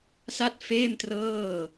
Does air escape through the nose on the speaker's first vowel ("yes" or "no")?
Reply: no